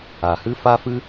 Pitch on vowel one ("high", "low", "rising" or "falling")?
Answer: low